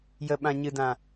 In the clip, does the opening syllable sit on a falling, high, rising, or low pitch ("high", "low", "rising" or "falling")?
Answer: low